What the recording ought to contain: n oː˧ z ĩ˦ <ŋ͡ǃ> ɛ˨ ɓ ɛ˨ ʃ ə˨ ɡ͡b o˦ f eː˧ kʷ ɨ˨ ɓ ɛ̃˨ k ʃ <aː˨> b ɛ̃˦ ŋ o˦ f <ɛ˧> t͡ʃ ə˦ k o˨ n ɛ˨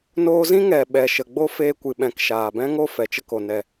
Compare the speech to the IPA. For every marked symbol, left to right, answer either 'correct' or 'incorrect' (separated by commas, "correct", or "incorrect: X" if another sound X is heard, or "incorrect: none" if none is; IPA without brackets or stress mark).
incorrect: ŋ, correct, incorrect: ɛ˨